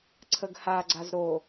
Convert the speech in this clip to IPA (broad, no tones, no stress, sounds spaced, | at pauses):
ǀʰ ə ɡ h a ɡ͡ǀ a z ɾ o